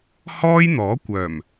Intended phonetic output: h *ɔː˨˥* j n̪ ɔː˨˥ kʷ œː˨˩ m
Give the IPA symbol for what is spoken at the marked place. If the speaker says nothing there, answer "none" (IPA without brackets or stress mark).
ɔː˥